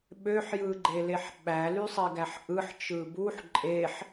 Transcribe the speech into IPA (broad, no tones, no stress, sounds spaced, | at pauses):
ɓ ø ħ j ɯ ɡ͡ǃ e l e ħ ɓ æ l y sˤ i ɡ æ ħ ʔ ɯ ħ t͡ʃ ɯ b u ħ ǃʼ e ħ